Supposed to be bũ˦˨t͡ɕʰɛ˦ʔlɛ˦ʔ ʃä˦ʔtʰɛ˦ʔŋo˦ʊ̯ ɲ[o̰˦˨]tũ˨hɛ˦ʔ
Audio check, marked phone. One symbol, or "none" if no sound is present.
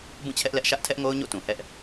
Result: o̰˦˨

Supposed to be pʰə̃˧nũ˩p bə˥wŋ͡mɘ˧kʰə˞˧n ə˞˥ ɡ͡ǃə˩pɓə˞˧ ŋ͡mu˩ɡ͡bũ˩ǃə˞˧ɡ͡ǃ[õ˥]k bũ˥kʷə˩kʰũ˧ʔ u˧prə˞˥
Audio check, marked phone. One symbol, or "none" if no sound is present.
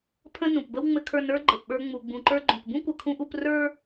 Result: õ˩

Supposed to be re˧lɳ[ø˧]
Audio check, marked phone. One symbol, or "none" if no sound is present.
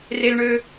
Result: ø˧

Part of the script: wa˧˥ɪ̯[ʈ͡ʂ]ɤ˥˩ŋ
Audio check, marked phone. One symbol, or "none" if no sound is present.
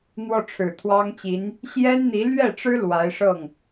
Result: ʂ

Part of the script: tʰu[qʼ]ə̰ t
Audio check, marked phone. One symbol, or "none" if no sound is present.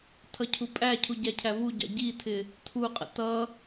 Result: qʼ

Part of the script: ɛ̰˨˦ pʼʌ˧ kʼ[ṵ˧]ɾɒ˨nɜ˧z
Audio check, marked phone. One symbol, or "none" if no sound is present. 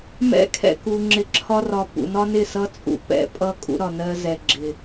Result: ṵ˧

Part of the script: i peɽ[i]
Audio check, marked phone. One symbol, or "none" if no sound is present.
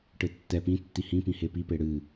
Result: ɨ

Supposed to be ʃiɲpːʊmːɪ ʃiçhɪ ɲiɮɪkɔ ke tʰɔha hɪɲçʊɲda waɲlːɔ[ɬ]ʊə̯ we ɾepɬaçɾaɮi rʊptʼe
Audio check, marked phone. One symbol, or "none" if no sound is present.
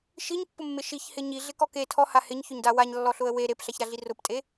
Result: ɬ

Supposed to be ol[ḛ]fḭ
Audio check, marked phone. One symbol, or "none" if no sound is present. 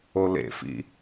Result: ḛ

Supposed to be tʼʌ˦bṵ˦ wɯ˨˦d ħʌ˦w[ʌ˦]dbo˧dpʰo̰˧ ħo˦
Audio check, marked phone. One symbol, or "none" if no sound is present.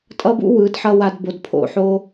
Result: a˦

